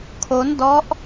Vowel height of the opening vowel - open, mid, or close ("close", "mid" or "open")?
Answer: mid